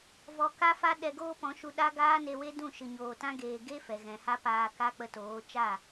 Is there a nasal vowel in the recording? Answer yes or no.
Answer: yes